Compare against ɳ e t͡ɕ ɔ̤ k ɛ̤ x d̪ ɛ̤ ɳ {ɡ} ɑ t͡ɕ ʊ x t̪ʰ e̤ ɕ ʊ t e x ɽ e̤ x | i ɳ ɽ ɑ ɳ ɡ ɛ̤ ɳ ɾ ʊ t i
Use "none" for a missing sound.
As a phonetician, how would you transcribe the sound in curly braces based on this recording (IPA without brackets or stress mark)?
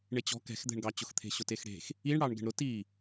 ɡ